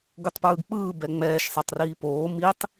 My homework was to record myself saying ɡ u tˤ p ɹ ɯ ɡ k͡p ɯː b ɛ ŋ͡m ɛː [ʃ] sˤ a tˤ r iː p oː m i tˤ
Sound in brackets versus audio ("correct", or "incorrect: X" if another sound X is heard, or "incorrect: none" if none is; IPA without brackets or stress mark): correct